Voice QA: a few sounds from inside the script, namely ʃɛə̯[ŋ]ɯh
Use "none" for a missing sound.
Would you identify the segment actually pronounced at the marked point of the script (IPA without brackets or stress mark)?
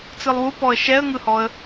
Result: ŋ